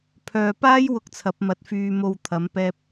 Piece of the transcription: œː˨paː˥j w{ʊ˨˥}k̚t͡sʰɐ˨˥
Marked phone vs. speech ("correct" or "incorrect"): incorrect